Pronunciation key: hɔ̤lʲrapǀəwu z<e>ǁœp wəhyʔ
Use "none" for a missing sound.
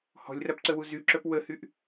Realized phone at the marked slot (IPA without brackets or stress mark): y